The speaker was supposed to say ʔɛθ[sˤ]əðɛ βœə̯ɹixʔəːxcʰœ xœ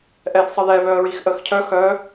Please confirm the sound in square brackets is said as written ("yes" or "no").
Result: yes